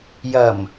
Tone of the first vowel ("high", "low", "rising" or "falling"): low